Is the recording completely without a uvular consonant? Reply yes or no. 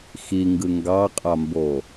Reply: no